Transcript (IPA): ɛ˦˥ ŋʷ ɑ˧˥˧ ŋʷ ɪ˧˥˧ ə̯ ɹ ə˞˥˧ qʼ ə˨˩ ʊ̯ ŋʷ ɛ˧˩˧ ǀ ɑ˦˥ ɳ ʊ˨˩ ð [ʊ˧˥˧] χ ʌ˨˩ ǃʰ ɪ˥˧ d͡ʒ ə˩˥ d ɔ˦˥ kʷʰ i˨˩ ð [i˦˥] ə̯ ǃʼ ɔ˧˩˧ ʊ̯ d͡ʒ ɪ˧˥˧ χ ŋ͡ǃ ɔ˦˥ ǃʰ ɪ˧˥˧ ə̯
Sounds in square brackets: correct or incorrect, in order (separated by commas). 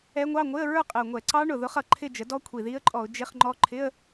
incorrect, correct